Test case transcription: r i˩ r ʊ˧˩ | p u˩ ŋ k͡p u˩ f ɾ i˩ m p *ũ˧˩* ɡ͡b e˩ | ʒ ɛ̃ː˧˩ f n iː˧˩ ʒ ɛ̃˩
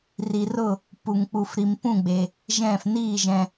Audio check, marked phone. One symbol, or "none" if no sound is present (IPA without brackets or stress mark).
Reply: ũ˧˩